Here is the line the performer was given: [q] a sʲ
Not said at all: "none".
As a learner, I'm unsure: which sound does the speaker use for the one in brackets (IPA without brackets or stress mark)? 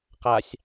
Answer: q